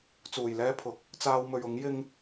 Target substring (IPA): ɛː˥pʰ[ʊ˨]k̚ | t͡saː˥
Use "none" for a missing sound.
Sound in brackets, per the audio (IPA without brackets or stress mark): ʊ˨